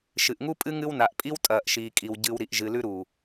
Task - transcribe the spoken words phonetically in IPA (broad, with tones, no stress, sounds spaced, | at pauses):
ʃ ɨ˨ ʔ ŋ u˦ pʼ ɨ˦ ŋ ɨ˦ w n a˨ ʔ pʼ i˦ w tʼ ɐː˨ ʔ ʃ iː˨ kʼ i˨ w ɟ ɨ˨ w ɾ i˨ ʔ ʒ ɨ˨ l ʉ˦ ɾ u˨